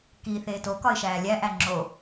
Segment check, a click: present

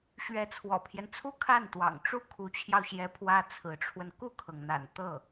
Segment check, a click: absent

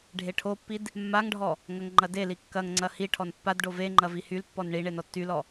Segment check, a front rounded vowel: present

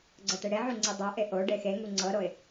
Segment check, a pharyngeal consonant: present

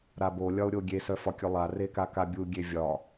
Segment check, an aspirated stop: absent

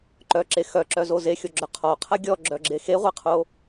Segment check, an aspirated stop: present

